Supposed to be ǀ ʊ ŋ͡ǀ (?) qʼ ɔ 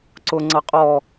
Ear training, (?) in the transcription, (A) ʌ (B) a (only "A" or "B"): A